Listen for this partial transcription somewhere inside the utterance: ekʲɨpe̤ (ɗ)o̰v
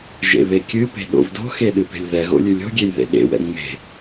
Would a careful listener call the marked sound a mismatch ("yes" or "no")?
no